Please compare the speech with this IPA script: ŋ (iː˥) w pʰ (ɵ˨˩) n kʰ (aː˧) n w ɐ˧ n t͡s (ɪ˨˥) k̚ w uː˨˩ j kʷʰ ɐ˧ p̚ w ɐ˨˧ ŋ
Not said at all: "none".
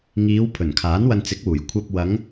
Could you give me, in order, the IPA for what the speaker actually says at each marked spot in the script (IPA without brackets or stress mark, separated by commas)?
iː˨˧, ɵ˨˩, aː˨˥, ɪ˨˥